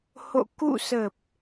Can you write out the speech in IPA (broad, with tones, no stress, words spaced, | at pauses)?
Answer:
ho̰˧˨ kṵ˧˨sə˨˩p̚